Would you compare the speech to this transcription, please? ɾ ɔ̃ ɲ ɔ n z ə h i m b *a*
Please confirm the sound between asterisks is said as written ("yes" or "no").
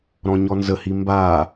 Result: yes